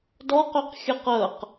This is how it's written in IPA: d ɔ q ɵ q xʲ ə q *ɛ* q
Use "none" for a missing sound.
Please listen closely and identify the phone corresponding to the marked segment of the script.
ə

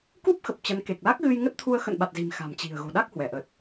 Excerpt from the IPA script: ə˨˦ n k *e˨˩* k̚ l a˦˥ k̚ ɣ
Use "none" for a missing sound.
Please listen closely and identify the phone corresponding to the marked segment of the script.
e˨˩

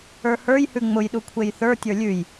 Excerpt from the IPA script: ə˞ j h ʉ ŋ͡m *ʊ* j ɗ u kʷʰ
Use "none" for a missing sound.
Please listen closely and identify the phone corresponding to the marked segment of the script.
ʊ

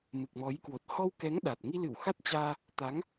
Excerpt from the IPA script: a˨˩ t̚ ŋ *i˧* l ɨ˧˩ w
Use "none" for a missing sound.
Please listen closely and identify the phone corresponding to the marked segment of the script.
i˧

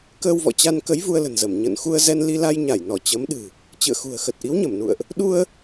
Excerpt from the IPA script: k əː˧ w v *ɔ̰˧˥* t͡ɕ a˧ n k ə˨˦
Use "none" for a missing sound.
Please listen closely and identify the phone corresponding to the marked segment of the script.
ɔ̰˧˨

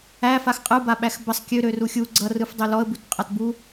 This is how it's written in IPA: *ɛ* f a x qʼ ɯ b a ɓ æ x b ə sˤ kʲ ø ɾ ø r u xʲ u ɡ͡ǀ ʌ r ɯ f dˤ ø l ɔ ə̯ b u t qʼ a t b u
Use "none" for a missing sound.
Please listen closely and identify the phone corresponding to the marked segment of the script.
æ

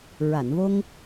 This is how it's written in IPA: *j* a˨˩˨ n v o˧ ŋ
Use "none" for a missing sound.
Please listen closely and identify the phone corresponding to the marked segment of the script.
ɹ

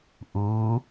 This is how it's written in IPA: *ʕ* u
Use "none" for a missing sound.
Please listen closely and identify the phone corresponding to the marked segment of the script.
ʔ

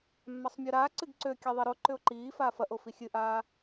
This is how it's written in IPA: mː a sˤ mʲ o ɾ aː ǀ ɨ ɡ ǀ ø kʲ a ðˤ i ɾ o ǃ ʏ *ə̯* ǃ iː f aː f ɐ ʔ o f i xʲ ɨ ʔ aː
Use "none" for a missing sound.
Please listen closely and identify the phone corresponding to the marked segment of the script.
ʊ̯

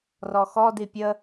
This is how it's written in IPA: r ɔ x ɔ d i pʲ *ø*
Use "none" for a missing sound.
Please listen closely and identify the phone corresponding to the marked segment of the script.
ə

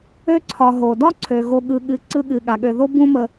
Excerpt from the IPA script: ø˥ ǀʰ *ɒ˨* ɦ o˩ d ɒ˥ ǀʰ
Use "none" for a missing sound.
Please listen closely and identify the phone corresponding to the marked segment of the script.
ɒ˨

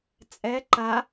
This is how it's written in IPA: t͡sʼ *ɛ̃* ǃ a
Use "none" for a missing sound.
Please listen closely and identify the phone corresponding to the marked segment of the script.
ɛ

